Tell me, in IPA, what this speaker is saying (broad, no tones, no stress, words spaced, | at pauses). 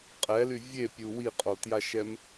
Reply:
qʼɛly vʲepʲu wiqʼotjaʃɛm